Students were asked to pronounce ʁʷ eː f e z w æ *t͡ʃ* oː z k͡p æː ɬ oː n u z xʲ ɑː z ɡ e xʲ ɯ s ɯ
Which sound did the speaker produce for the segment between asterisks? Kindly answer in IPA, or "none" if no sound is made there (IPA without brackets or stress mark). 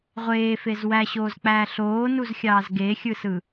ɕ